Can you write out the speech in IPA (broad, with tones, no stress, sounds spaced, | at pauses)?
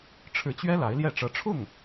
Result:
ʈ͡ʂʰ ɻ̩˧˥ t͡ɕ ɥ ɛ˥ l a˧˥ ɪ̯ l j ɛ˥˩ ʈ͡ʂ ɤ˧˥ ʈ͡ʂʰ ʊ˥˩ ŋ